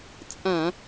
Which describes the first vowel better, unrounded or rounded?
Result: unrounded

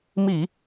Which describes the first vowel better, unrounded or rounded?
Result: unrounded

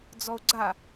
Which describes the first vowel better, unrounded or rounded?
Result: rounded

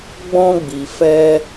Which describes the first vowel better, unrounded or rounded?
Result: rounded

